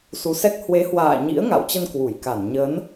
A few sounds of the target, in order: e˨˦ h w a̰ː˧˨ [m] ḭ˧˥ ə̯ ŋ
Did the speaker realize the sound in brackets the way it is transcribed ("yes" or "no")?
no